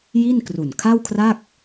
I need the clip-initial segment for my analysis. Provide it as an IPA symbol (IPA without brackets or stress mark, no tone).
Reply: j